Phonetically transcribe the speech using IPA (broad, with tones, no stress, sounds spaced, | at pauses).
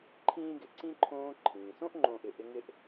ǃʰ ĩː˥ ɡ ɪ˨ ǀ ĩ˥ ǃʰ õː˦ ǃʰ ĩː˩ s õ˥ ʔ ŋ͡ǃ õː˨ ʔ ɪ˨ ʔ ɪ˦ ŋ ɪ˥ ʔ